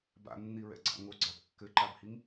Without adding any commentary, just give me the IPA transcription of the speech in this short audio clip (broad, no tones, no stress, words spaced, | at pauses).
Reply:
ba̰nːiɹɛ̰ɡ͡ǀa̰ ŋoɡ͡ǀab kːɘǃabhiŋ